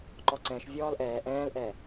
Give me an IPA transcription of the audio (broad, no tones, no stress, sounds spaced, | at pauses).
ǃ ɔ ǀ ɛ̃ ʃ vʲ ɔː l ʔ ɛː ʔ ɛ̃ː l ʔ ɛ